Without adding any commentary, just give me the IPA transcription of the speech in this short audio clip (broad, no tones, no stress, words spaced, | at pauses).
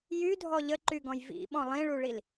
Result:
jydʱɔ ʎəǃyɡɔ̃j vḭɓɔ̃ lˠĩɭuɭil